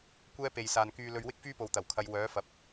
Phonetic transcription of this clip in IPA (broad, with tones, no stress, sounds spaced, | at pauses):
kʷ ɛː˥ p e˨ j s aː˨ n k yː˧ l ɵ˧ ɥ w ɪ˥ k̚ f yː˥ p o˨ w t̪ ɐ˨˩ w kʰ ɐ˨˧ j w œː˨˥ f ɐ˨ p̚